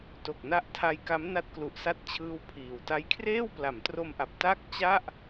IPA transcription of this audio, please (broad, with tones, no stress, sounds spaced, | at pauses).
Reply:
t o˨˩ k̚ n a˦˥ ʔ tʰ a˦˥ j k a˦˥ m n a˦˥ t̚ k l u˨˩ ʔ s a˦˥ t̚ t͡ɕʰ ɯː˥˩ w pʰ iː˨˩ w t a˥˩ j kʰ r eː˥˩ w p l a˩˦ m t r o˧ m ʔ a˨˩ p̚ t a˥˩ k̚ t͡ɕ a˥˩ ʔ